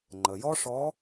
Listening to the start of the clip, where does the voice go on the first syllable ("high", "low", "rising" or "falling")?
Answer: low